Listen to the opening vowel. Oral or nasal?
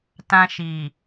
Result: nasal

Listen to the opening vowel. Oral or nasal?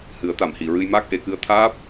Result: oral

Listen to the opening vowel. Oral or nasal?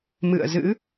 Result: oral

